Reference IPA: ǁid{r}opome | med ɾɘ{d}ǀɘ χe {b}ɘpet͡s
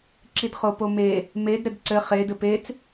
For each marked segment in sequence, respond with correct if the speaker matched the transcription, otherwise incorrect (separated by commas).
incorrect, correct, incorrect